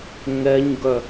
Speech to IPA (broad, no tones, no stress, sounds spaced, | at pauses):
ŋ ɛ ɲ ɡ œ